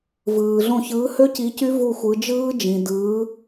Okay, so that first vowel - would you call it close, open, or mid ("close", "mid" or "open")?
close